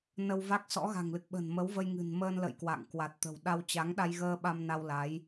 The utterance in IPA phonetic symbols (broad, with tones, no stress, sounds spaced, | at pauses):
n ə˧ w v a˦˥ k̚ s ɔ̰˧˥ ɣ a̤˨˩ ŋ l ɨ˨˩ k̚ ɓ ə̤˨˩ n m ə˨˦ w v ə˧ j ŋ ɨ̤˨˩ n m əː˧ n l ə̰˧˨ j k w a̰˧˨ ŋ k w a˨˩ t̚ t̪ ə̤˨˩ w ɗ a˧ w t͡ɕ a˨˦ ŋ ɗ a˧ j ɣ əː˧ ɓ a˧ m n a˧ w l a˨˦ j